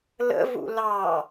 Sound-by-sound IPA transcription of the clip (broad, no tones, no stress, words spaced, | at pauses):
lə̰vṵ lɑ